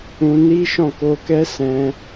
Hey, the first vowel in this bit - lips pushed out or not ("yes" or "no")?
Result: yes